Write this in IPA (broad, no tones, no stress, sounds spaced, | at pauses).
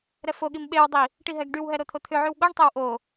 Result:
ɾ ɛ f o ɠ i m ɓ e w dˤ i | ʈ i ɦ ɛ ɡ ɖ y w ɦ ɛ ɾ o t̪ʰ o t̪ʰ ʏ ʕ y w ɠ o ɳ tˤ ɛ w ʔ o